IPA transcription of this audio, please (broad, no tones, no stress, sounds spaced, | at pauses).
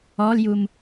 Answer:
ɔ l j u m